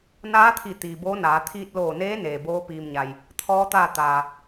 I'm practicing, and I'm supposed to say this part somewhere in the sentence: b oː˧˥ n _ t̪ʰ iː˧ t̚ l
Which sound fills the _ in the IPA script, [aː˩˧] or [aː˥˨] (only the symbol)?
aː˩˧